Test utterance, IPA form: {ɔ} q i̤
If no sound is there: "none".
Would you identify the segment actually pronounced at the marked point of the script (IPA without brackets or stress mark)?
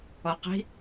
ɔ